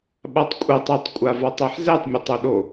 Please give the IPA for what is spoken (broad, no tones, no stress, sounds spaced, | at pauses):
ɓ a tˤ kʷʼ ɛ tˤ ɤ tˤ kʷʼ a v a tˤ e ħ z ɛ tˤ mʲ a tˤ o ɗ o